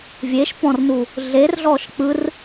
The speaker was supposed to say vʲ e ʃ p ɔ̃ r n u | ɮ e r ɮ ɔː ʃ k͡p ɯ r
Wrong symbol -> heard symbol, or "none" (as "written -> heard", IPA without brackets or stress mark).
none